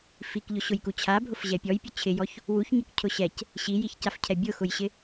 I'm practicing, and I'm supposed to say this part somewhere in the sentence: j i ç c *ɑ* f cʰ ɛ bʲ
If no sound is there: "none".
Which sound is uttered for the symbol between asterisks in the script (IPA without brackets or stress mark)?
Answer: a